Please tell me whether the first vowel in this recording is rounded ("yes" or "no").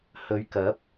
yes